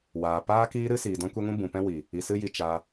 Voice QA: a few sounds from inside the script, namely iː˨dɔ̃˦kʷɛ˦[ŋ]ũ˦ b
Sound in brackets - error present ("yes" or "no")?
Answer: no